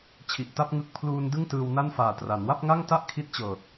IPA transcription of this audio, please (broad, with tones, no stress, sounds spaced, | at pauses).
t͡ɕʰ i˨˩ ʔ t a˥˩ p̚ ŋ ɯ˦˥ k̚ pʰ l uː˧ n d ɯ˥˩ ŋ t ɯː˧ w n a˥˩ n f aː˨˩ t r a˩˦ n w a˥˩ p̚ ŋ a˥˩ ŋ t a˥˩ ʔ kʰ i˦˥ t̚ t͡ɕ ɤː˨˩ t̚